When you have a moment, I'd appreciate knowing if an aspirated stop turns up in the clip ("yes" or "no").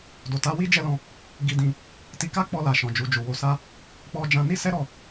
no